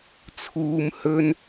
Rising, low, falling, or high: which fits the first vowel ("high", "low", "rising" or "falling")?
low